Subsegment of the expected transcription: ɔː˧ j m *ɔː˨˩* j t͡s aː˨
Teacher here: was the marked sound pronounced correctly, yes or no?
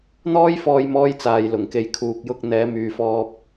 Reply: no